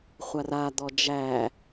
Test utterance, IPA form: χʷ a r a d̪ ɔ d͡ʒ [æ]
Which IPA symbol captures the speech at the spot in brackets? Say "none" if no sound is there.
æ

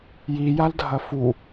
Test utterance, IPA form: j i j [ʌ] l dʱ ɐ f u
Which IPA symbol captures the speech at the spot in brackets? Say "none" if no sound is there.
a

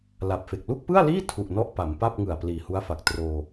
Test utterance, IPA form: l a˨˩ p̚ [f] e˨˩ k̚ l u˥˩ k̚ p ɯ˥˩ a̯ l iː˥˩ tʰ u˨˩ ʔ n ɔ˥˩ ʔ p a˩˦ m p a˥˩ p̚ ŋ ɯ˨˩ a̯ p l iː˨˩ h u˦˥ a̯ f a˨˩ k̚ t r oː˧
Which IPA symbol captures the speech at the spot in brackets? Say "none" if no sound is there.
f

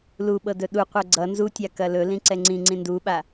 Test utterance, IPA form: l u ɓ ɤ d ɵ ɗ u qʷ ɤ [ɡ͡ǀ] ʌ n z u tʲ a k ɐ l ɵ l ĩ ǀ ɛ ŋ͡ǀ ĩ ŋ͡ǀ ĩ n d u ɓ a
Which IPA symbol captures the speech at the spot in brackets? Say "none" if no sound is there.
ɡ͡ǀ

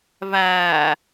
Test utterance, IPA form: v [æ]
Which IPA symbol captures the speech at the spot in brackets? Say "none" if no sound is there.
æ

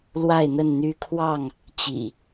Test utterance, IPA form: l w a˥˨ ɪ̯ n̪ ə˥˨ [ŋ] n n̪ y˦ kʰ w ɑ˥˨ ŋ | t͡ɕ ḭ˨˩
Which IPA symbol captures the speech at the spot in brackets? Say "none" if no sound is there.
none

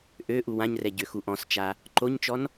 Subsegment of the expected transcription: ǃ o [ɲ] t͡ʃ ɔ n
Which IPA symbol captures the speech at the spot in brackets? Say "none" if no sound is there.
ɲ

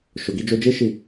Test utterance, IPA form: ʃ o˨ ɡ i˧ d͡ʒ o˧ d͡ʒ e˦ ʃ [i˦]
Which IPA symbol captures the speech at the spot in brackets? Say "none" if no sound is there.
i˦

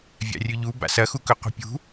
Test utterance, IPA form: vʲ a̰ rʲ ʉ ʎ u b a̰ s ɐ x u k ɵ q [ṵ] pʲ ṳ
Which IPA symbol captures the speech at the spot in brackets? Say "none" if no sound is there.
ṳ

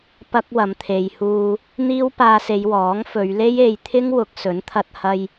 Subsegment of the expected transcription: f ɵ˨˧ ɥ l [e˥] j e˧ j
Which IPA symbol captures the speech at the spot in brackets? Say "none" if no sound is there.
e˥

